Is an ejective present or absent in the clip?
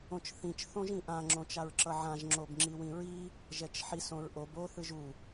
absent